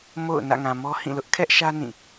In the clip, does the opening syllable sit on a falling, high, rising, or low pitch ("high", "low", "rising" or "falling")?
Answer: falling